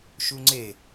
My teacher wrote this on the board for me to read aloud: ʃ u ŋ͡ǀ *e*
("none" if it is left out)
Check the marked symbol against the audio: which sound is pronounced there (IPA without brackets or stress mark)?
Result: e